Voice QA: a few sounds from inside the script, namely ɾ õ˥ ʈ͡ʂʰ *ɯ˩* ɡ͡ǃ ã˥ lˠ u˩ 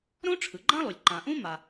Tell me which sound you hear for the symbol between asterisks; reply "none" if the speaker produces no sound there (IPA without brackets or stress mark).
ɯ˩